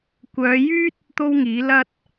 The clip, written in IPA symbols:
kʷ œː˨˧ j yː˥ t̚ | t̪ o˥ w ŋ iː˨˥ l ɐ˧ t̚

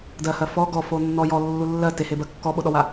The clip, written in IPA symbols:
d ɜ h ɜ f ɔ ɡ ɔ f o nː ɔ j ɔ lː u lː ɜ t e h e b ɜ kː ɔ ɓ o ɗ ɔ w a

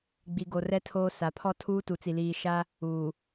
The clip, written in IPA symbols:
ɡ͡b i˨ ɡ o˨ r ɛ˦ tʰ oː˦ s a˨ pʰ ɔ˦ tʰ uː˦ t u˨˦ t͡s i˨ l iː˨ ʃ a˦ | uː˨

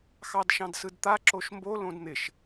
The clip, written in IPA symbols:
x ɑ d ʃ ɑ̃ d s ɯ d t̪ a ǁ o ʃ m b o l õ d n̪ ɪ ʃ

